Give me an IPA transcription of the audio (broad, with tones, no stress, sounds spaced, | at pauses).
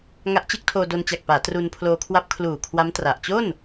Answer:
ŋ a˦˥ ʔ t͡ɕ ɯ˦˥ k̚ tʰ oː˧ d o˧ n t͡ɕ a˨˩ k̚ p aː˩˦ t r u˧ n pʰ l oː˧ kʰ w a˦˥ p̚ kʰ l uː˨˩ kʰ w a˦˥ m t r a˨˩ ʔ t͡ɕ o˥˩ n